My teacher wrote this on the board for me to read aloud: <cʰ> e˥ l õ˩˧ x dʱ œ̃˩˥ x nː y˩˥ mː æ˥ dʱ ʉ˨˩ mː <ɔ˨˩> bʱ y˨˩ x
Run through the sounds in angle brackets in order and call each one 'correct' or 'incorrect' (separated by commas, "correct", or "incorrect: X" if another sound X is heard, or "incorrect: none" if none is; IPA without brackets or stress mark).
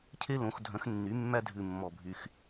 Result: correct, correct